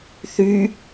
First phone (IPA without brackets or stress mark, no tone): θ